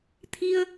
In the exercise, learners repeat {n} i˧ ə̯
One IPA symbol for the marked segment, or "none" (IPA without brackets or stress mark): t̪ʰ